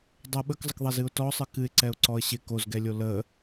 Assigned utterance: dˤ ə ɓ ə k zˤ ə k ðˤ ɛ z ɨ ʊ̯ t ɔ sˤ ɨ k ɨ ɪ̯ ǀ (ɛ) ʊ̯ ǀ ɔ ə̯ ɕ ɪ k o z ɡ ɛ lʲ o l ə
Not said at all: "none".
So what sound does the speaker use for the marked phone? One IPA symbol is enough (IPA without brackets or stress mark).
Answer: ɛ